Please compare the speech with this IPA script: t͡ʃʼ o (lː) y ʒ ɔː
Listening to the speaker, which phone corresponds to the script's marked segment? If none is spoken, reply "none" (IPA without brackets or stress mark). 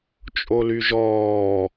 l